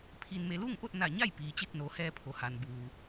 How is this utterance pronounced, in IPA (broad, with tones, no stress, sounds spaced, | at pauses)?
pʰ i˩ n m e˩ l uː˥˨ ŋ ʔ o˥˨ t̚ n a˧˩ ɲ a˥˨ j p iː˩ t͡ɕ e˥˨ k̚ n o˩˧ h ɛː˧ pʰ o˩ h a˩ n b uː˩